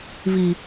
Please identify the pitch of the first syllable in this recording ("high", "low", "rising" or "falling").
low